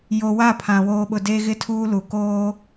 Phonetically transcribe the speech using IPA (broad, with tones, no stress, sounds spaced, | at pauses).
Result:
j o˨ w a˦˨ pʰ ã˨ w oː˨ ɓ ʊ˨ d e˦ ɣ ɪ˦ tʰ uː˦ l u˨ k oː˦